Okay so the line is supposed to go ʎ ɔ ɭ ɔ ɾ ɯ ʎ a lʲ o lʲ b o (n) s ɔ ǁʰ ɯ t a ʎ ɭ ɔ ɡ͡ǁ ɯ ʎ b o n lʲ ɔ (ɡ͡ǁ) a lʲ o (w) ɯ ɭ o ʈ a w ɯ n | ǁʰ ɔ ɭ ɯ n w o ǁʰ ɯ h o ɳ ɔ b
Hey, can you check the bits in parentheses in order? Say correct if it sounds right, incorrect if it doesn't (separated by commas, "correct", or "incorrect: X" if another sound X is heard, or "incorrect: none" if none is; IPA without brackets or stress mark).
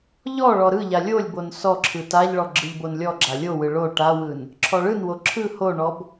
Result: correct, correct, correct